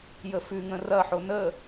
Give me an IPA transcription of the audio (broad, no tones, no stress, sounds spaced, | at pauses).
j ə f ʉ ŋ ə̃ r ɐ ħ o n ə